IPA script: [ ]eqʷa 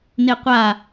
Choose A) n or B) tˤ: A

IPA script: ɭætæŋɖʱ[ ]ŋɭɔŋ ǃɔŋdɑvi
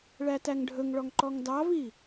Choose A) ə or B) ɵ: B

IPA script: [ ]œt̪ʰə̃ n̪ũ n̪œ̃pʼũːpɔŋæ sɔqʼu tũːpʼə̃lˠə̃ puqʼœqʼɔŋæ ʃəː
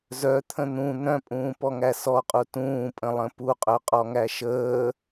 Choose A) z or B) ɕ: A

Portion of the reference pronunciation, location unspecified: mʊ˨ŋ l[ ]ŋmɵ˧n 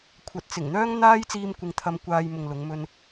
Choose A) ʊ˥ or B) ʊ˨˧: B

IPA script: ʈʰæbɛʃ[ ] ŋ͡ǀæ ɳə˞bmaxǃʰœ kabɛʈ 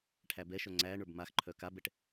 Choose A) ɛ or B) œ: B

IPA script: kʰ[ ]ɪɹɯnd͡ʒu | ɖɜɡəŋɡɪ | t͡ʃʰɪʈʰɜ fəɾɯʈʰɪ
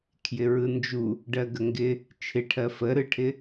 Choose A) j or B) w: A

